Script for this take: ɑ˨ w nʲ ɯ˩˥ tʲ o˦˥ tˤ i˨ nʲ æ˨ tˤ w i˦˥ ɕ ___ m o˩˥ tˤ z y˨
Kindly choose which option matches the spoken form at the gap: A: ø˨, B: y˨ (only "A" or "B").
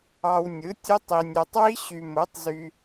B